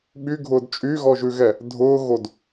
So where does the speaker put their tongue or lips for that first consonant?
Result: lips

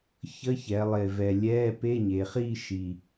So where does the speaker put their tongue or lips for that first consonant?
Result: palate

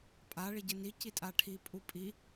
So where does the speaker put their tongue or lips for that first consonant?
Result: lips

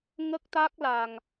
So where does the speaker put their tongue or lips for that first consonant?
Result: velum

